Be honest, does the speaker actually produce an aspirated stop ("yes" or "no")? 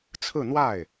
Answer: yes